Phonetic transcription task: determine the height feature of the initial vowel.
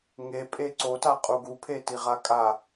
mid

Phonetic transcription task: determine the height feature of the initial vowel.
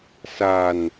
low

